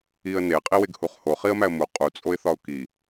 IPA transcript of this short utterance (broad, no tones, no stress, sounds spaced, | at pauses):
i ə̯ n e qʼ i w e ɡ h u χ h o χ i ə̯ m æ ə̯ m u qʼ u t͡sʼ o ɪ̯ θ ɒ ʊ̯ k i